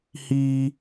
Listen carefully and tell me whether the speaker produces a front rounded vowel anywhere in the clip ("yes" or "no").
no